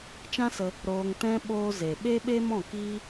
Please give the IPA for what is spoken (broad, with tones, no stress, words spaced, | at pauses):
t͡ʃã˦sə˧ | ɾoː˧ŋtɛ̃˦ ɓoː˦ze˨ ɓe˦ɓe˦ mɔ̃˦˨kiː˦